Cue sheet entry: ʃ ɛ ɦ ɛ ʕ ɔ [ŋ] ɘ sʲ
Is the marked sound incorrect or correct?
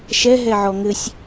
correct